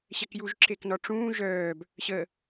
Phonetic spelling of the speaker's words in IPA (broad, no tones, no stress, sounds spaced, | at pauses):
ɕ ɛ k j u ʒ ǁ e k n ɔ ʈ͡ʂ ũː ʒ œː b | ɕ ə